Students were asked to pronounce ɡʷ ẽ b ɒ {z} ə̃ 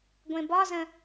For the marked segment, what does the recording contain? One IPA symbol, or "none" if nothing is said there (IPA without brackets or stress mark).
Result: z